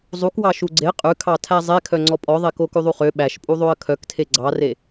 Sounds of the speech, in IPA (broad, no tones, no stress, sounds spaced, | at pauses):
zˤ u k w ɑ ʃ u ɡ͡ǀ e qʼ ʉ kʰ ɑ tʰ æ zˤ e kʰ œ ŋ͡ǀ ɔ pʼ ɔ ðˤ e k o k ʉ ðˤ u χ ø ɓ æ ʃ pʼ u ðˤ o ə̯ kʰ œ k tʰ e ɡ͡ǀ ɑ r e